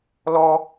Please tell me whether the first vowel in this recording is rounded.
yes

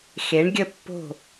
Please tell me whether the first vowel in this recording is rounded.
no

